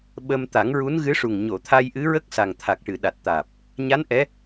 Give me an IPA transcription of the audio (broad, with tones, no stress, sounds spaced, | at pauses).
ɓ ə˧ m t̪ a˨˩˦ ŋ ɹ u˧˥ n ɣ ɨ˧˥ ʂ u˨˩ ŋ ɲ o˨˩˨ t̪ʰ a˧ j ʔ ɨ˧˥ ɹ ə˦˥ k̚ s a˨˩ ŋ t̪ʰ a˨˩ k̚ ʈ ɨ˨˩˨ ɗ a˨˩ t̚ t̪ aː˨˩ p̚ | ɲ a˧˥ n ʔ ɛ˧˥